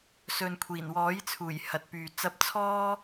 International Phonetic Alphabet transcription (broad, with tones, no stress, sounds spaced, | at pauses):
s ɵ˨ n kʷʰ iː˨˩ n w ɔː˨˥ j t͡sʰ uː˨˩ j h ɐ˨ t̚ p yː˨ t͡s ɐ˨˥ p̚ t͡sʰ ɔː˧